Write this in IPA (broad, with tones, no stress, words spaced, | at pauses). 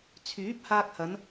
t͡sʰyː˨˥p̚haː˧k̚hɐ˨˧n